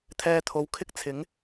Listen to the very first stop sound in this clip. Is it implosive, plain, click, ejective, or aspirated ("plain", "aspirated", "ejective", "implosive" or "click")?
aspirated